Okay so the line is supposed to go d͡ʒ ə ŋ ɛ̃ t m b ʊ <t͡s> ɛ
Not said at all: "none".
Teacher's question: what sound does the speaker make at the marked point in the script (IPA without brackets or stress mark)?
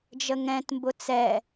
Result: t͡s